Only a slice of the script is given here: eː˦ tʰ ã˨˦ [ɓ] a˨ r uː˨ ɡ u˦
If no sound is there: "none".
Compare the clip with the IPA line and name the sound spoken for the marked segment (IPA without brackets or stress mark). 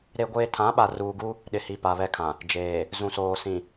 ɓ